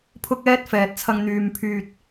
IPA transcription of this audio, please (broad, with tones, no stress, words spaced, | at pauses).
pʰʊ˥k̚ɛː˥t̚fɛː˨t̚t͡sʰɐ˧ŋ n̪yː˨mpʰyː˨t̚